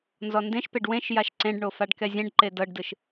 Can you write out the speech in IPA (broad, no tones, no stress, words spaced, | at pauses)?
nzɔndẽʃpeɖ wẽʃ jaʃǀẽɖɳo faɖkɛzʲɛ̃ɖǃe dɤɖdɯʃ